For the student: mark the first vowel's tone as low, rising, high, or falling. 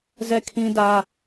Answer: falling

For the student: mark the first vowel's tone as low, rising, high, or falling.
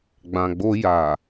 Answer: low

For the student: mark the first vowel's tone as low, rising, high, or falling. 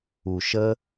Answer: low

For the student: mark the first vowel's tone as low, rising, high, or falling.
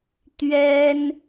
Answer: high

